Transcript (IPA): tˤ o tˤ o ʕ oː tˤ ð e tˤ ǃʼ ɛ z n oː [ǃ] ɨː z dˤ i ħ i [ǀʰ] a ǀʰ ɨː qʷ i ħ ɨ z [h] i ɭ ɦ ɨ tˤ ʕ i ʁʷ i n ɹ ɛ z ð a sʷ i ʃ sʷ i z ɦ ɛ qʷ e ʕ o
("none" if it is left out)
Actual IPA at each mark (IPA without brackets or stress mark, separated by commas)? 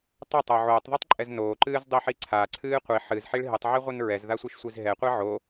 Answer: ǃ, ǀʰ, ħ